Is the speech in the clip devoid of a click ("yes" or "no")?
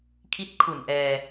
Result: yes